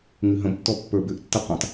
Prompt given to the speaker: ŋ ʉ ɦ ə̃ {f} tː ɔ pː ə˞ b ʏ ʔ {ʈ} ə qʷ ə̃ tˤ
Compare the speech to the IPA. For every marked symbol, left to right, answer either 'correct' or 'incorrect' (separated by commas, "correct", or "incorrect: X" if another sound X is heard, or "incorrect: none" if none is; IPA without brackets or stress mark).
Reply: incorrect: b, incorrect: tː